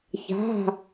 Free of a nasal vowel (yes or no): yes